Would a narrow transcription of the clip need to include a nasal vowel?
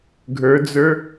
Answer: no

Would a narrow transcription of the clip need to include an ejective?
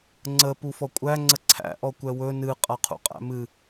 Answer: yes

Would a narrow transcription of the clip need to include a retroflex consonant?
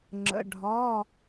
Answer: yes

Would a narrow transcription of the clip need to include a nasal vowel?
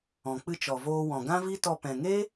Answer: yes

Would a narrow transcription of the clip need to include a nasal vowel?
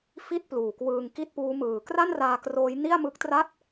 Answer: no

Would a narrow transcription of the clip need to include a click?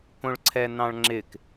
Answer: yes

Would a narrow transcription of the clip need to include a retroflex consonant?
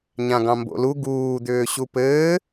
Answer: no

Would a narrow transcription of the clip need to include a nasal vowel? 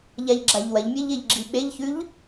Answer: no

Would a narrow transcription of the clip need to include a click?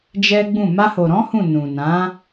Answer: no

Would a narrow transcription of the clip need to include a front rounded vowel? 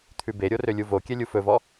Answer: yes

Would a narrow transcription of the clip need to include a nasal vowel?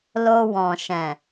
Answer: yes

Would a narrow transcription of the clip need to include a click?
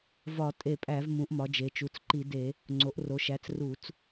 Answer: yes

